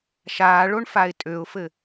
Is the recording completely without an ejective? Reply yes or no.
no